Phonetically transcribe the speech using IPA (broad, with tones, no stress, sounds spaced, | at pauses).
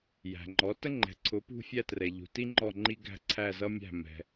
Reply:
j æ̤˩ ŋ͡ǃ ɔ˩˥ t ə˥ ŋ͡ǃ ɛ̤˩˥ ǀʰ ʊ˩˥ p ṳ˧ fʲ æ˥ t r ɛ˩ ʎ ṳ˩ t i˥ ŋ͡ǃ ɔ˥˩ ŋ͡ǃ i˥ ɡ æ̤˥˩ ǀʰ æ˥˩ z ʌ˥ mʲ æ̤˥˩ m ɛ̤˩